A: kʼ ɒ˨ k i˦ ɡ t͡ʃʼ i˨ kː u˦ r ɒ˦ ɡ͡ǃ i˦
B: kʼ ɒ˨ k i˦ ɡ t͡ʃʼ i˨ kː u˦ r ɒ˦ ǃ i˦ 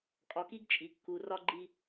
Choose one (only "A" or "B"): A